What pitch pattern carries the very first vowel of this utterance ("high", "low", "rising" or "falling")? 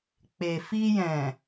low